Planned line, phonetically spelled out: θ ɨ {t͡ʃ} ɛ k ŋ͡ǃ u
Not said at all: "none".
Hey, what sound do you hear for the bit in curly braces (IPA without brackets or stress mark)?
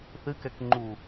k